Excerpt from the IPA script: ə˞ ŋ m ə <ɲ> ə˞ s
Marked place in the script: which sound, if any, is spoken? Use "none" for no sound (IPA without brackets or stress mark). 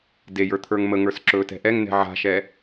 ŋ